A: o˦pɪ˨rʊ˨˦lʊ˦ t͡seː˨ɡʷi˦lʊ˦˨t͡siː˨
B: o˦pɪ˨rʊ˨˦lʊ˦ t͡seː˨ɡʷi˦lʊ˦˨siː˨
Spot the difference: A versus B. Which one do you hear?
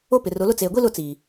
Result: A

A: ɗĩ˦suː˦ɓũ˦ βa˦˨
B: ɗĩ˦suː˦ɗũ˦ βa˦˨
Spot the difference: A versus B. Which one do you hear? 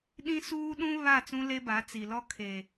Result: B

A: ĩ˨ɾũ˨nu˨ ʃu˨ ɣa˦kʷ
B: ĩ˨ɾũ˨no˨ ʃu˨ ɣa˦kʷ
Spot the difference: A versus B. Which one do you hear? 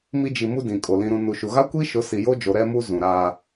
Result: A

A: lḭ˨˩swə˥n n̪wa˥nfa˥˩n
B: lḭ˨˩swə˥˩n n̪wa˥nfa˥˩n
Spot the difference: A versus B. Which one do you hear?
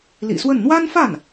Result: B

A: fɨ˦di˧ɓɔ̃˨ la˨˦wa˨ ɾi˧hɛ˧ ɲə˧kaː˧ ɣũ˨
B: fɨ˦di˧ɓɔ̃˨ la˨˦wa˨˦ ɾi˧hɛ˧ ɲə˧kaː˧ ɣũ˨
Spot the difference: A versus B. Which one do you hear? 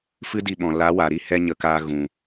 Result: A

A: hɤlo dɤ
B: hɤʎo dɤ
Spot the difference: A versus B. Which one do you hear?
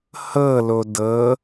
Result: A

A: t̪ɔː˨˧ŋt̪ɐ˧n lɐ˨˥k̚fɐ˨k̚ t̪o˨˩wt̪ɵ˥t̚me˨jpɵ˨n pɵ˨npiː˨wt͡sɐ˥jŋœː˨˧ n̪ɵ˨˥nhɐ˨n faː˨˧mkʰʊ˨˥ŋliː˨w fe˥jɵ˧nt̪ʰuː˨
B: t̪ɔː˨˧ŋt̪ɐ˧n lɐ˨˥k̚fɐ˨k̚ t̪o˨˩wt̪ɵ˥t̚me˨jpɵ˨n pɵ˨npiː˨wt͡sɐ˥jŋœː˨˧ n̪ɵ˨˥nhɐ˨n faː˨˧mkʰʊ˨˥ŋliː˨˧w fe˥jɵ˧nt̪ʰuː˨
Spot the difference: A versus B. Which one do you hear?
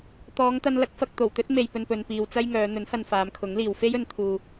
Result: A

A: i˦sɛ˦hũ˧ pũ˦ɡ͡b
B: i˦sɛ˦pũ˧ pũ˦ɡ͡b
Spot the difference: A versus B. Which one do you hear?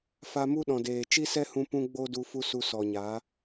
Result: A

